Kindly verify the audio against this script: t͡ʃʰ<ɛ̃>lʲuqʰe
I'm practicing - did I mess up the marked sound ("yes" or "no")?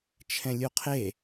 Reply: no